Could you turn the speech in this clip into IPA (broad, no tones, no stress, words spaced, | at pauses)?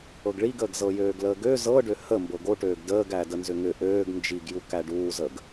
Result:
ɤɡɭiɡəːɡ zɤjøːɡləːɡø zɤɖø həmbɤ ɡoʈøːɡ dəːɡæ dənzʏŋʏ ʔøːɡ nd͡ʒiɡju kæɖuːzəɡ